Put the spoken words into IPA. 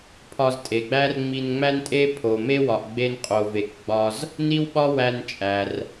pʰ ɒ˧ z tʼ e˩ ɡ͡b æ˥ r ŋ͡m i˧ n ŋ͡m æ˥ n tʼ e˥ pʰ o˩ m e˥ w ɒ˩ ʔ ɡ͡b e˧ n qʼ o˩ v e˩ k ɡ͡b ɒ˧ z | n i˥ w ɓ ɒ˥ w æ˧ n t͡ʃʼ æ˩ r

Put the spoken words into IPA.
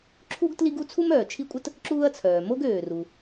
ǁʰ u˥ ɡ t l i˥ ɡ u˥ t͡sʰ u˥ m œː˩ t͡ʃʰ i˥ kʷʼ ə˥ t | ǁ uː˥ ɐ̯ t͡sʰ œː˩ m o˥ ɡ øː˩ r u˩

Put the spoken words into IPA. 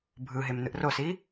bʱ ɯ ɦ e m n ɯ ʔ r o s i

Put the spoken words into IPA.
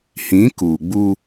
h ĩ˨˦ k uː˨ ɡ͡b u˦

